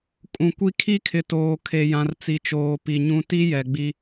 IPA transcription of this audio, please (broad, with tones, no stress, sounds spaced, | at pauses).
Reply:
kʼ ũ˨ kʷ i˦ kʰ i˦ kʰ ɪ˨ t oː˨ kʰ e˨ j ã˨ r t͡s i˨ t͡ʃ oː˨ p i˨ ɲ ũ˦ t i˦ j ɛ˨ ɡ͡b i˦